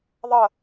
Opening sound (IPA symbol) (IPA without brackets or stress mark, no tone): ðˤ